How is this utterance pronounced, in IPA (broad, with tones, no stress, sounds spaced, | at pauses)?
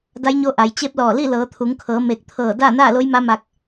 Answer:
d a˧˥ j ɲ o˧˥ ʔ a˩˧ j t͡ɕ e˧˥ p̚ l ɔː˧˩ l i˥˨ l ɤː˩˧ t̪ʰ u˩˧ ŋ kʰ ɤː˩˧ m e˧˩ k̚ t̪ʰ ɤː˧˩ d aː˥˨ n aː˥˨ l o˧˥ j m a˧˥ m a˧ k̚